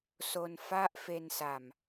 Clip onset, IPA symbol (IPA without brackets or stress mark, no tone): s